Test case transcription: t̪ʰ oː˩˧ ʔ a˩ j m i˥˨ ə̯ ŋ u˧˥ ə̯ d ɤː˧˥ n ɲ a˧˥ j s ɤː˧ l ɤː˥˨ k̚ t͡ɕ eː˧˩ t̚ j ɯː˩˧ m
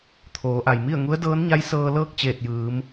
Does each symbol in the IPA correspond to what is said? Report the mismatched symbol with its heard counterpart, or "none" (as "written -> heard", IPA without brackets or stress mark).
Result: none